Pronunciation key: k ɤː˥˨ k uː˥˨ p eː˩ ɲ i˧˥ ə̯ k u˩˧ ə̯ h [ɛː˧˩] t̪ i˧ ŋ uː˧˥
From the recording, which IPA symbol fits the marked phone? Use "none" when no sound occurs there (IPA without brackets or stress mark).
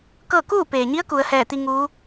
ɛː˧˩